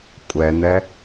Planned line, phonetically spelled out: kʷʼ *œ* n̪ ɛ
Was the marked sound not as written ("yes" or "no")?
yes